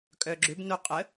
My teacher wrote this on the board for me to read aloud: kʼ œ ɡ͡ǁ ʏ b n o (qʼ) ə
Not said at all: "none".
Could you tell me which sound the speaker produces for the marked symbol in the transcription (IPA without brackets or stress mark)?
qʼ